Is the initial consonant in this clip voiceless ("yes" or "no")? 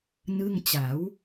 no